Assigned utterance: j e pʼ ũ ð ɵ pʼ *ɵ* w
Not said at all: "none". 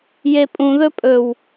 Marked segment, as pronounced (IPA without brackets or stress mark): ɵ